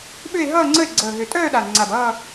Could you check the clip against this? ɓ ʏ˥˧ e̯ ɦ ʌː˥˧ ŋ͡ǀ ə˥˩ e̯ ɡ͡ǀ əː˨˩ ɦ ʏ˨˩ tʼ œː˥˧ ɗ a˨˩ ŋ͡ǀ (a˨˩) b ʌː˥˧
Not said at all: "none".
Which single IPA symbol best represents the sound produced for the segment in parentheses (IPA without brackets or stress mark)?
a˨˩